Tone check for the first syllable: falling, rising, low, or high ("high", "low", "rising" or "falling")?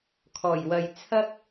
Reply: low